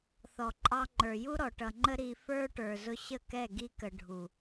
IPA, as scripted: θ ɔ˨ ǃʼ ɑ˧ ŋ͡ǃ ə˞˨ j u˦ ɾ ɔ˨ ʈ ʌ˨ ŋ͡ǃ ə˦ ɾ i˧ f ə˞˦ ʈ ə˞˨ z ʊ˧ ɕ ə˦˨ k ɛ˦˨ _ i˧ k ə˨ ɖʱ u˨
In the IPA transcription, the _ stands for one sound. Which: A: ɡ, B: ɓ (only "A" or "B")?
A